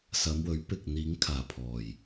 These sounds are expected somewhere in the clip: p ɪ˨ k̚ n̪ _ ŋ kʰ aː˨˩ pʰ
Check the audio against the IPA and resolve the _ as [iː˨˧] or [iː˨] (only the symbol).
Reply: iː˨˧